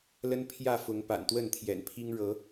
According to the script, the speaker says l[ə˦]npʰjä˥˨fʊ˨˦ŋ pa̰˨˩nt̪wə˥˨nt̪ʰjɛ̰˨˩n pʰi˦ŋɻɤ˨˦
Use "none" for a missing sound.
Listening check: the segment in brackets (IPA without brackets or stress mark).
ə˦